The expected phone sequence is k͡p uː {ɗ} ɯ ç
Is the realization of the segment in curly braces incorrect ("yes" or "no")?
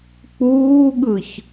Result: yes